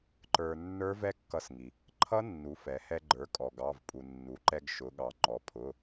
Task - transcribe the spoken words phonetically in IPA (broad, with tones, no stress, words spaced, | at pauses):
ǃə˞˧ nːə˞˦˥vɛ˦˥kːʌ˧sŋi˩ | ǃʰʌ˦˥ nːu˩˥ fɛ˩˧hɛ˧ ɡ͡ǃə˞˩˥kʼɔ˩ ɡɑ˩˧˩vpʼu˩nːu˩˧ǃɛ˧ɡ ʃʊ˩˧ɠɑ˩ ŋ͡ǃɔ˩˧pʰʊ˩˧˩